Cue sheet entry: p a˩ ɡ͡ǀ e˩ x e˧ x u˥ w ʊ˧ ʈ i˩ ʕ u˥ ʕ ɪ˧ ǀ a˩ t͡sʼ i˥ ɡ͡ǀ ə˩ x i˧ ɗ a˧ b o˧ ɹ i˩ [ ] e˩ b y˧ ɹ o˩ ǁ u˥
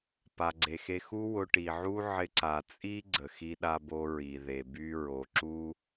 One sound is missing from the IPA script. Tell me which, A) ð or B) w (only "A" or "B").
A